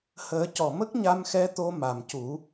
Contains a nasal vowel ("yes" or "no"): no